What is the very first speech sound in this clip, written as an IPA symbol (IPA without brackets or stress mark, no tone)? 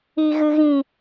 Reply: i